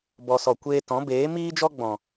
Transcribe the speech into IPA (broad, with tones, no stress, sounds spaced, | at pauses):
b ɔ˨ s ɔ˨ kʷ eː˧ t ɔ̃˨˦ b eː˨˦ m iː˦ d͡ʒ ɔ˦ ɡ͡b ɔ̃˨